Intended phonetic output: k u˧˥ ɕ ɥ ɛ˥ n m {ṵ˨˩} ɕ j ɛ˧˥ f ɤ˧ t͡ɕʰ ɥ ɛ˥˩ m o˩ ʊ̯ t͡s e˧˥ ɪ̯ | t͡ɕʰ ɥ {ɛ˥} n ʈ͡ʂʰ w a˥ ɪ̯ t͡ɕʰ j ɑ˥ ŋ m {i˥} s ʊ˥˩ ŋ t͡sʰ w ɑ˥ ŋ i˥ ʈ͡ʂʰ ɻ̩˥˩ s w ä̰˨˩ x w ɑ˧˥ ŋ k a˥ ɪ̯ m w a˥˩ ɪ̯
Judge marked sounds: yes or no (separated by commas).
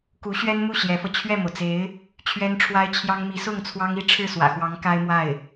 no, yes, no